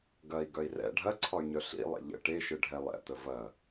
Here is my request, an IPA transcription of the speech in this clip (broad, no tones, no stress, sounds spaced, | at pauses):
ɡ ɐ i̯ ɡ œ i̯ r ɛ̰ ɖʱ ɐ ǀʰ ɒ y̯ ɲ œ ɬ ḭ lˠ ḛ ʎ ə̰ ʈ e ʃ ɯ ɖʱ ɛ lˠ ɛ̰ t̪ ə v ɐ